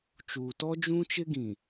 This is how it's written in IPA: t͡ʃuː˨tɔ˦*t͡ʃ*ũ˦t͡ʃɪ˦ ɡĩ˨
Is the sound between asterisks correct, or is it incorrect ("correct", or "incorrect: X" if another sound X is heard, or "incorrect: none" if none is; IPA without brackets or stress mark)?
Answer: incorrect: d͡ʒ